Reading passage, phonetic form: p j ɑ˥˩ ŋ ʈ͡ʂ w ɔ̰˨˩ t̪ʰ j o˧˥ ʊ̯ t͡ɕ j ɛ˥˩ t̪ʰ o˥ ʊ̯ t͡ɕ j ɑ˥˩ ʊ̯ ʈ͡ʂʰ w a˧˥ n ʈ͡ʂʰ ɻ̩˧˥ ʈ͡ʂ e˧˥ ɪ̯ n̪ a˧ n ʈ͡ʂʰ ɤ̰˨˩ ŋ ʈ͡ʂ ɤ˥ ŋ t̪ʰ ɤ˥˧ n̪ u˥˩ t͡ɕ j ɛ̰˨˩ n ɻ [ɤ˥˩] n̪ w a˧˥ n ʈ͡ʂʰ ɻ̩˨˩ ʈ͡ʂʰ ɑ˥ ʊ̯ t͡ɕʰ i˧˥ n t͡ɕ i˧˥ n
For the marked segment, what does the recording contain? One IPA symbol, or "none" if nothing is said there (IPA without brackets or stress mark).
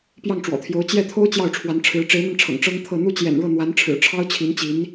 ɤ˥˩